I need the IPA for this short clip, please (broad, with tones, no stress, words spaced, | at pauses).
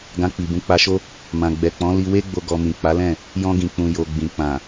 ɡã˧k͡pi˨ bũ˨˦k͡pa˧ʃo˦ | mã˨ ɡ͡bɛ˨k͡pɔ̃˨˦ li˧we˦ɡ͡bo˧ ɡɔ˧ mĩ˨k͡pa˨˦lɛ̃˦˨ | jɔ̃˧ɡĩ˨k͡pũ˨ jo˨ɡ͡bĩ˨ k͡pã˨